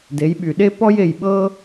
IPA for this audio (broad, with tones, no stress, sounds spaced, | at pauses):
d e˨˦ j ɓ y˨ ɗ e˥ p ɔ˥ j e˦˨ j ɓ ɤ˥